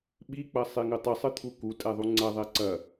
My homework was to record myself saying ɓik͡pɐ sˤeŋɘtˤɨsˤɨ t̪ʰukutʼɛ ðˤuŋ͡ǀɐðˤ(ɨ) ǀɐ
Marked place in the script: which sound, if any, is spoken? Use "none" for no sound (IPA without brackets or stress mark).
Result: ɛ